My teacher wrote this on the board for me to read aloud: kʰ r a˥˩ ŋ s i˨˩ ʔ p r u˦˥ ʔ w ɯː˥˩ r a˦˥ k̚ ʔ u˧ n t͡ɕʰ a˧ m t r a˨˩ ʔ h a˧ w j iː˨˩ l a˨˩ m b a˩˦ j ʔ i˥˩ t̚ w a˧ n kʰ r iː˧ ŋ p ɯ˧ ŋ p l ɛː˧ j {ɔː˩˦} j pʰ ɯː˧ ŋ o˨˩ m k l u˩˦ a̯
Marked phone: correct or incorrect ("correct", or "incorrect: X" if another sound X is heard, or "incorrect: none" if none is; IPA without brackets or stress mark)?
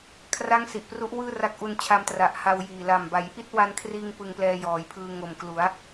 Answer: correct